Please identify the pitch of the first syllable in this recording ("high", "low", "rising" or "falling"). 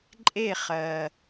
falling